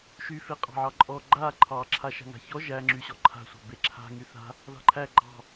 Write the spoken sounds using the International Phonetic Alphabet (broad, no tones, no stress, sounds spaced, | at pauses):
ʃ y f e qʼ ɑ̤ ʕ ɑ ǃʼ ɔ ɡ͡ǃ a ǃʰ ɑ ǁʰ a ʃ a̤ ŋ a̤ ç ɔ ʒ æ ŋ͡ǁ y ɕ ɔ ǃʰ a̤ sʷ ɑ̤ b e ǁʰ a̤ ŋ y θ a̤ | ð ɑ̤ ǃʰ æ ɡ͡ǃ ɑ̤